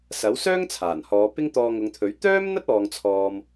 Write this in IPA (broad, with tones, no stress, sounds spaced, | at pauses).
s ɐ˨˥ w s œː˥ ŋ t͡sʰ aː˨˩ n h ɔː˨˧ p ɪ˥ ŋ t̪ ɔː˧ ŋ ʊ˨˧ ŋ t̪ʰ ɵ˨˥ ɥ t̪ œː˥ m n̪ ɐ˥ t̚ ɔː˥ ŋ t͡sʰ ɔː˥ m